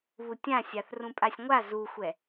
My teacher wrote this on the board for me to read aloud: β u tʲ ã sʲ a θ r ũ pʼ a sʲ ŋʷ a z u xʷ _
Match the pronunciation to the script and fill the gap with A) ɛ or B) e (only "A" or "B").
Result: A